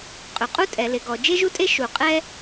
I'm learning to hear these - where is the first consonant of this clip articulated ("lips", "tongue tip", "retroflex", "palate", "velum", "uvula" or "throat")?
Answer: uvula